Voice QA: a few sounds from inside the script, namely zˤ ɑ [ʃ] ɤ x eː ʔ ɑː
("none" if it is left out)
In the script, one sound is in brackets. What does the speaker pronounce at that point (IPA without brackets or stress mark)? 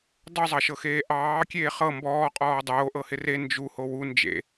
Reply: ʃ